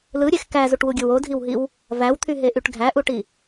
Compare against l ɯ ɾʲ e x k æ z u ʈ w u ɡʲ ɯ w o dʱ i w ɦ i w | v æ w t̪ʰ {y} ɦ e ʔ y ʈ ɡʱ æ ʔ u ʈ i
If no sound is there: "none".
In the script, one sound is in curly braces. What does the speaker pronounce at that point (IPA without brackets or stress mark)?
y